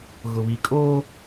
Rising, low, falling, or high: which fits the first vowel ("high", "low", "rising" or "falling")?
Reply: low